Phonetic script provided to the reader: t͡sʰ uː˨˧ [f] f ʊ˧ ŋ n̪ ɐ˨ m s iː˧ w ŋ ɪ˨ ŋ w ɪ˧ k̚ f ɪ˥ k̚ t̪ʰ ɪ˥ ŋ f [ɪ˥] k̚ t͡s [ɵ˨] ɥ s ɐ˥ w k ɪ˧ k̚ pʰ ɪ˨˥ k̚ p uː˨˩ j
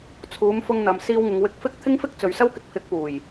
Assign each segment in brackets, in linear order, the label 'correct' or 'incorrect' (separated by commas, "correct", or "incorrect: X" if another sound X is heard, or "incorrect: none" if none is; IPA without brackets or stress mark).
incorrect: m, correct, correct